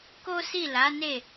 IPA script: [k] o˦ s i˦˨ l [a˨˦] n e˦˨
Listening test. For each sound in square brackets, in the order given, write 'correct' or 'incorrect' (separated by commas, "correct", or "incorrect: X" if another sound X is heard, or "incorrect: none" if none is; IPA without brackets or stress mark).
correct, correct